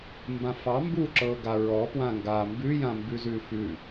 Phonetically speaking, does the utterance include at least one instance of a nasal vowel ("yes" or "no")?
yes